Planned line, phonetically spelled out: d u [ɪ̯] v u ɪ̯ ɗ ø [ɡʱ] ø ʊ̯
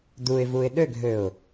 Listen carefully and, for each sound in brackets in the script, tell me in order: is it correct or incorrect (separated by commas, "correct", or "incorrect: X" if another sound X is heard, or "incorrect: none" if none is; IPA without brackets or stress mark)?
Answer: correct, correct